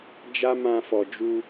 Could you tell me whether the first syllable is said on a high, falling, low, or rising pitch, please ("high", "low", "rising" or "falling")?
high